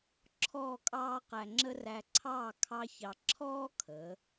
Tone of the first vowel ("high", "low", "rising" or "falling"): falling